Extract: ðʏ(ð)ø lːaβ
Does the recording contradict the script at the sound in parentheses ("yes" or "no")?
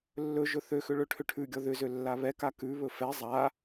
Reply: yes